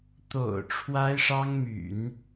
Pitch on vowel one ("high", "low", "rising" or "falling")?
low